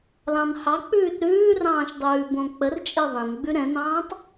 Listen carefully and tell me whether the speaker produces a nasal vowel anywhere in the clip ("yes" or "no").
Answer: yes